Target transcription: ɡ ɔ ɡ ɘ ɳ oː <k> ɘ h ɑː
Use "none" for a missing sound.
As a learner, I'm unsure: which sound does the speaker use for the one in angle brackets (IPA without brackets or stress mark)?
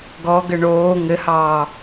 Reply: ŋ